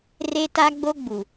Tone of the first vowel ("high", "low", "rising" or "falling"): high